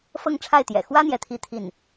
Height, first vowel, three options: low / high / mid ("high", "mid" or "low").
mid